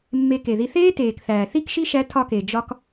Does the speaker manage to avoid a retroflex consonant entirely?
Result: yes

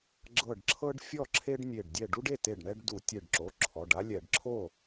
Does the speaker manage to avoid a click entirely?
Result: no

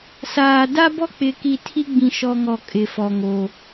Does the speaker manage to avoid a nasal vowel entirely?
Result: no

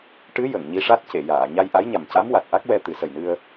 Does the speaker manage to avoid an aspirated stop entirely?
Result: yes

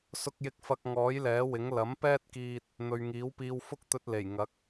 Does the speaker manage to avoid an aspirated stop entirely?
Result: yes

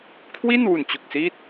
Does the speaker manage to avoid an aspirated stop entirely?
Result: no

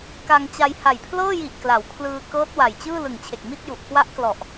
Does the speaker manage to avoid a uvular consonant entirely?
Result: yes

